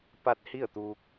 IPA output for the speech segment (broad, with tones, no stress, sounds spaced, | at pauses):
p a˧˥ t̚ h i˥˨ ə̯ t̪ uː˧ k̚